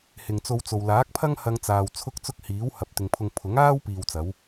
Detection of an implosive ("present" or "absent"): absent